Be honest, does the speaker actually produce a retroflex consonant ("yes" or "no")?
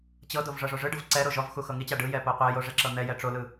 yes